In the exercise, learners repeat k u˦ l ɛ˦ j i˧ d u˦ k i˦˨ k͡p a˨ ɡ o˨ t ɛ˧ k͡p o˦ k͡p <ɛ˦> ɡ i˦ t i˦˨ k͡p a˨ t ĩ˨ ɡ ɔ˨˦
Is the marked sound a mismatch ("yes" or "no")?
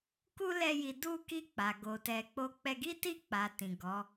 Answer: no